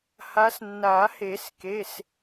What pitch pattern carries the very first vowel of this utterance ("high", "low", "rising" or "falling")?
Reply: rising